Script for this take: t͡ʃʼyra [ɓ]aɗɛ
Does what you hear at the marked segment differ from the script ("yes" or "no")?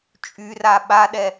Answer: no